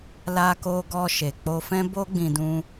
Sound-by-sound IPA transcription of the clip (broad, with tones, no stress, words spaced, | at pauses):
la˧ko˧ɡɔ˧ ʃe˨k͡po˧ fɛ̃˦bo˦ɡ͡bĩ˧dũ˧